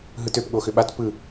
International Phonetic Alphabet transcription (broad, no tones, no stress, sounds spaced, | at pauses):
ɦ ɯ t ø p ɠ o x ʏ ɓ a t p ɯ